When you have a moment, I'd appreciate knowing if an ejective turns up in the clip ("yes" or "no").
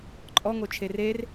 yes